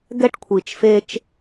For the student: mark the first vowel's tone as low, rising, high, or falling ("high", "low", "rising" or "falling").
high